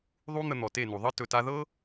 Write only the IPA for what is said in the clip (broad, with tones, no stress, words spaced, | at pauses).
ðˤu˦n̪ə˧ n̪ɔ˨te˦˨nu˨ ðˤɤ˦ tɵ˨ta˧ðɤ˦